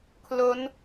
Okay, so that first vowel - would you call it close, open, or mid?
mid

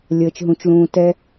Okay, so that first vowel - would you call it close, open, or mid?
mid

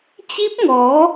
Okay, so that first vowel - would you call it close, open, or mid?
close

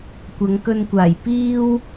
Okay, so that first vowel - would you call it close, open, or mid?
open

